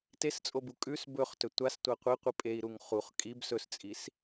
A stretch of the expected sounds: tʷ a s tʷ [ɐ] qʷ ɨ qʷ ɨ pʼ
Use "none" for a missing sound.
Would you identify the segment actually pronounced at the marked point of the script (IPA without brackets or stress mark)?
a